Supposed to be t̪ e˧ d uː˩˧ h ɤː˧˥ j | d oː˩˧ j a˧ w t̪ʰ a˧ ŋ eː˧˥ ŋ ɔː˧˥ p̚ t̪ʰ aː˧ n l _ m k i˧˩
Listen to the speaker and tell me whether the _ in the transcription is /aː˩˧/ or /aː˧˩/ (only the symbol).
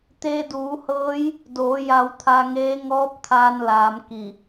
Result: aː˩˧